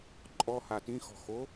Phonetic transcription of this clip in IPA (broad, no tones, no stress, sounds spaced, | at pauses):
ǃʼ ɔ h a t ĩ x ɔ̤ x o